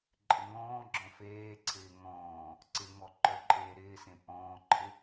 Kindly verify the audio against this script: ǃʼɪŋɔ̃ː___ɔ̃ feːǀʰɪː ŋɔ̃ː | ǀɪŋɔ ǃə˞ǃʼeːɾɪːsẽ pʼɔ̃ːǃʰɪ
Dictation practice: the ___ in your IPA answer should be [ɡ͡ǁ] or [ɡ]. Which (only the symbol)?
ɡ͡ǁ